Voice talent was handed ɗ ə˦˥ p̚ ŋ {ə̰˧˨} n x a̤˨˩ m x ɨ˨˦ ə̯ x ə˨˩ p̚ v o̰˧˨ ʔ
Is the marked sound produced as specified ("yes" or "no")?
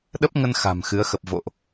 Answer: no